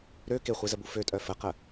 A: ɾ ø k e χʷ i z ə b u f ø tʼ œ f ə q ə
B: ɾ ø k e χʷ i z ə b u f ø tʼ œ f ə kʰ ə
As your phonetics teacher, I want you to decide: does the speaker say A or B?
A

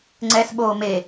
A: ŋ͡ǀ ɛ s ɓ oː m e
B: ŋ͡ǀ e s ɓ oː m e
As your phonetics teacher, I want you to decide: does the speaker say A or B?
A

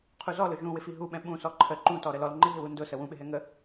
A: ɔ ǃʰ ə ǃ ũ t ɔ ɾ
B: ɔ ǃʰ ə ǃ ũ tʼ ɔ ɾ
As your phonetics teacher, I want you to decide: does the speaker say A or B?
A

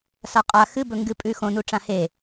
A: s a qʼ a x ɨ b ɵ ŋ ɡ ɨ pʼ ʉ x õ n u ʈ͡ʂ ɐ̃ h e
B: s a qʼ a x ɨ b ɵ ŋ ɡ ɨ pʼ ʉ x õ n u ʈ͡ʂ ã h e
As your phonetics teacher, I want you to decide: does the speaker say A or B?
B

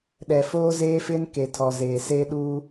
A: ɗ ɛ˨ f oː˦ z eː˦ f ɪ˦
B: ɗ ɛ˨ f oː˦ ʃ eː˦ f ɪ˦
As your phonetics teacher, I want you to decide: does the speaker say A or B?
A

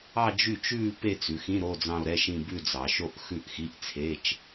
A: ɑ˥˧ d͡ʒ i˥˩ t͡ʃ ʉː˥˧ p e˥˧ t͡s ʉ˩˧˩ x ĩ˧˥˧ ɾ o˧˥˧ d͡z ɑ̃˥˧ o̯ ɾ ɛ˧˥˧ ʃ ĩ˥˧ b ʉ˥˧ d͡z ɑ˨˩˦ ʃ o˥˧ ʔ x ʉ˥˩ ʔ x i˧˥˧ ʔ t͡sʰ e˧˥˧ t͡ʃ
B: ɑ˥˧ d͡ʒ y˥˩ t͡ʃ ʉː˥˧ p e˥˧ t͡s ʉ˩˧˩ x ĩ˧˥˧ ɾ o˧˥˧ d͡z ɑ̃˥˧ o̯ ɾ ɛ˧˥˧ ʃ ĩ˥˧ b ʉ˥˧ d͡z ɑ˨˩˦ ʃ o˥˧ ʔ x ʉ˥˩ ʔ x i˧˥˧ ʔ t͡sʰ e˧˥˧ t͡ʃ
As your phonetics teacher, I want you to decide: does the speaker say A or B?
B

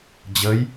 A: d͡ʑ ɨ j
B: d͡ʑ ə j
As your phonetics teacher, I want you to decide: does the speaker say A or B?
B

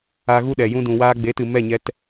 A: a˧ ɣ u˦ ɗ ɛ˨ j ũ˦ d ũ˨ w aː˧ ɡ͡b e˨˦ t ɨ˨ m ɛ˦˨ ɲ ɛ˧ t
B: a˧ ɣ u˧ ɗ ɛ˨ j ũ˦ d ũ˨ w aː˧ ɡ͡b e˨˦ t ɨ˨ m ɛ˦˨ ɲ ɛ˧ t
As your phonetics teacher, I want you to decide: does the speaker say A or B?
A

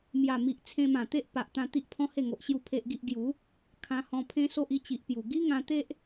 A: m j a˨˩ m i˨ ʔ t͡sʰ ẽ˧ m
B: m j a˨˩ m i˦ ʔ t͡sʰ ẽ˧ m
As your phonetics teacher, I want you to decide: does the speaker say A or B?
A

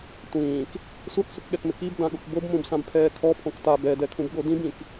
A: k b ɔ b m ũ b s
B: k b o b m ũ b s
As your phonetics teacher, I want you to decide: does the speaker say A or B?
B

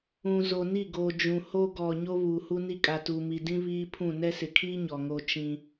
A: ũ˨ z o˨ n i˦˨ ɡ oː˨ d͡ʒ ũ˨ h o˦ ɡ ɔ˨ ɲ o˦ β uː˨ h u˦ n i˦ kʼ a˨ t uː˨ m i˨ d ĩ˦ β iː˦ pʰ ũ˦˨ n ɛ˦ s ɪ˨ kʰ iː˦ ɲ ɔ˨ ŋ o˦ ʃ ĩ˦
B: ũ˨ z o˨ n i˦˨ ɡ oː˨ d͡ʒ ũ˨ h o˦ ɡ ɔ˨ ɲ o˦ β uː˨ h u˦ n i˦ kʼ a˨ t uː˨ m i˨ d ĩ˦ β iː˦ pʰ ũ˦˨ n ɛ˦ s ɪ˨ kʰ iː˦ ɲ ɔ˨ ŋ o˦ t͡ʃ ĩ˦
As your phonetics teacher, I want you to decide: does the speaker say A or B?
B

